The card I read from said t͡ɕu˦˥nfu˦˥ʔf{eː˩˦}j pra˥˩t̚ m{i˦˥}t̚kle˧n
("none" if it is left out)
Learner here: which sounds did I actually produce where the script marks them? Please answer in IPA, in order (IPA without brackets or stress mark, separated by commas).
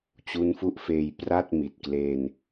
eː˧, i˨˩